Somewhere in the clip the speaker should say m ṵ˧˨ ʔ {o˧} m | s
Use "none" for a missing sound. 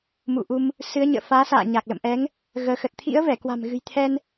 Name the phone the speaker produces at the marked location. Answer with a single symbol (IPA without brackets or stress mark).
u˧